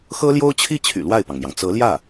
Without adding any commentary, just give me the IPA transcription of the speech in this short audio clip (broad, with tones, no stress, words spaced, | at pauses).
xɤ˥ljo˥ʊ̯t͡ɕʰi˥t͡ɕʰy̰˨˩ lwa˥˩ɪ̯pɑ˩ŋmjɑ˩ŋ t͡sɤ˧˥ljä˥˩